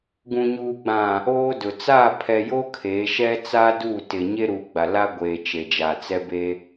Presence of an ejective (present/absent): absent